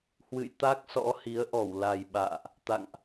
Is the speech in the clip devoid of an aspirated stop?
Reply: yes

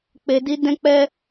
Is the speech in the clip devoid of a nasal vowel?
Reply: no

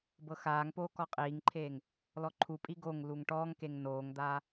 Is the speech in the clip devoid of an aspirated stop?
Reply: no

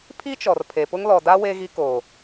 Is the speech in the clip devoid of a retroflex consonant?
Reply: yes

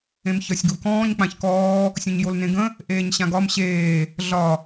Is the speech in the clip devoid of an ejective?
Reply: yes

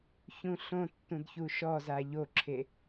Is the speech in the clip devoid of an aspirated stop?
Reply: no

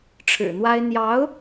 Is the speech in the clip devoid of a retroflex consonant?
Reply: no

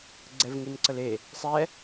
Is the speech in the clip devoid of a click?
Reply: no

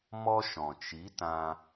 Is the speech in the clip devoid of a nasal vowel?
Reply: no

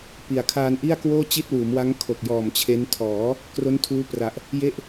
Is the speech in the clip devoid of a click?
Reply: yes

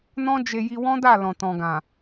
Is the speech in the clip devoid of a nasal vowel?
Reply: no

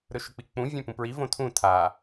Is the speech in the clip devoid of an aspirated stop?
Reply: no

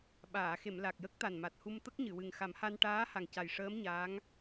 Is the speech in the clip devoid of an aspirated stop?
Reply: yes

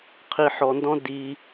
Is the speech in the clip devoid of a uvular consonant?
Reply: no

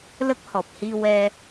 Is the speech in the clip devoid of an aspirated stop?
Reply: yes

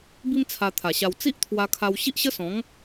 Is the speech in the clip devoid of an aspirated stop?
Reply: no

